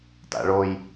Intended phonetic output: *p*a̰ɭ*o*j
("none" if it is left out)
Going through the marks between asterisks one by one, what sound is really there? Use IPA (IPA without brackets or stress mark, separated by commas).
t, o